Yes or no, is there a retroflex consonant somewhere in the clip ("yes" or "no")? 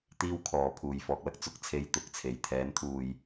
no